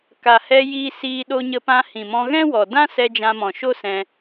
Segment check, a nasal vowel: present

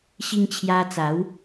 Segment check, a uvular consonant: absent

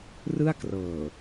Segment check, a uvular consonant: absent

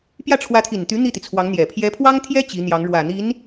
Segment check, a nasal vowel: absent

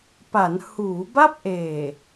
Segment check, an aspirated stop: absent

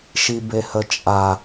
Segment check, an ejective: present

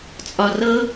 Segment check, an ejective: present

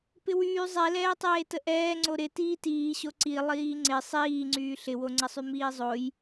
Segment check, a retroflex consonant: absent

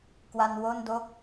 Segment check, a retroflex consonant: absent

